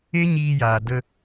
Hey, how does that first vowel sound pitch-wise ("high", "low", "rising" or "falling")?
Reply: high